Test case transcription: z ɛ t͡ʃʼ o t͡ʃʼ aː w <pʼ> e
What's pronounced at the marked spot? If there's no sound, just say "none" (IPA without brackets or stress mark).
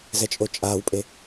pʼ